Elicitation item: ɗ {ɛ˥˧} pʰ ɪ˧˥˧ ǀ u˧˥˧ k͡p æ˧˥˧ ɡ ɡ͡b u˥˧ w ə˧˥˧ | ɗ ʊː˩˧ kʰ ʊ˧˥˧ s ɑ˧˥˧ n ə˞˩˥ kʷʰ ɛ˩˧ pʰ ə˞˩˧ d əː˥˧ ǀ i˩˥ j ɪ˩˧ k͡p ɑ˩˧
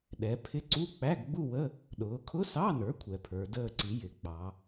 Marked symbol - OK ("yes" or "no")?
no